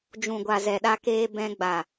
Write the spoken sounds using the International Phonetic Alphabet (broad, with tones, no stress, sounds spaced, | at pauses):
d͡ʒ ũ˨ ɡʷ a˨ z ɛ˨ ɗ a˧ k eː˧ b ɛ̃˧ ɡ͡b a˨